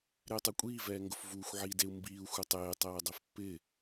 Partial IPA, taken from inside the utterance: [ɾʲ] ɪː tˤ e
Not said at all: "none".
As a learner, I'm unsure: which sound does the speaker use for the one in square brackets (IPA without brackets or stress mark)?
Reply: ɾ